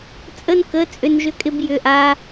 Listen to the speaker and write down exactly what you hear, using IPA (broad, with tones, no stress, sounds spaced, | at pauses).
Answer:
t͡sʼ ə˥ n k ə˧˥˧ t͡sʼ ʏ˥ n ʒ ʏ˥ kʼ ɪ˥ b j ʏ˧˥˧ ʔ a˥